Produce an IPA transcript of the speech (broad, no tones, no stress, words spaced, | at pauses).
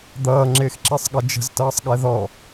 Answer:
d̪ʌːŋ͡ǁɪːxǁesˤɠʌ d͡ʒə̤ztʌːsˤɠɛ ðɔ